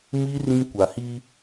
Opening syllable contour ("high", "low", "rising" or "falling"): high